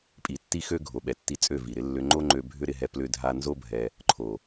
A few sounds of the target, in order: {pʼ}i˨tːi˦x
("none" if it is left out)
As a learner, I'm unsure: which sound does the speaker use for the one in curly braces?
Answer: pʼ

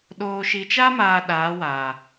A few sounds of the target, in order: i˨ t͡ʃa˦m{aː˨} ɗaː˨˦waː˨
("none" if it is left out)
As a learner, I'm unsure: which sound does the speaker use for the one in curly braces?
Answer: aː˨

